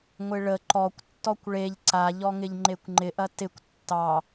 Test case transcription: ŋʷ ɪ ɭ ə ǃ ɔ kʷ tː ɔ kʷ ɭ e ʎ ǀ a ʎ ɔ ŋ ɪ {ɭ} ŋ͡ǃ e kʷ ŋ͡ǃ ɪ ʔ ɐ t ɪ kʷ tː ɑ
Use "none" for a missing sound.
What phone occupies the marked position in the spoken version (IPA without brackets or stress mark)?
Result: ʎ